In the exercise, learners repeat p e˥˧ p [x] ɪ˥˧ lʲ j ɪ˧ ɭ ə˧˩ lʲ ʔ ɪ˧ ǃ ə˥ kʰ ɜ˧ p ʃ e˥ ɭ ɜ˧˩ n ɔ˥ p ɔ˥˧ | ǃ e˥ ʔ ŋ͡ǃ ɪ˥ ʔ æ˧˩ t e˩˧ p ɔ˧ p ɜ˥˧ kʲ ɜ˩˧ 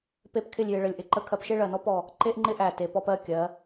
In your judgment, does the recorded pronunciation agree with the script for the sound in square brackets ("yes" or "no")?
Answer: no